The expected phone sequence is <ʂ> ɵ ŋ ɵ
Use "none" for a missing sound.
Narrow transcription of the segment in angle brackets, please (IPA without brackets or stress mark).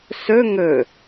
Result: s